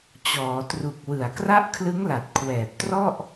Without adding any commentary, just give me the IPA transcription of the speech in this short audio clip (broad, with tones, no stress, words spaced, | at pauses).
t͡ɕɔː˩˦tru˨˩k̚ wɯ˨˩a̯kra˥˩ʔ kʰlɯ˦˥ŋla˨˩t̚kʰwɛː˨˩p̚ trɔ˥˩ʔ